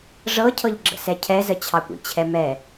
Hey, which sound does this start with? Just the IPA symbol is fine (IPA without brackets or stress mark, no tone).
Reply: ʐ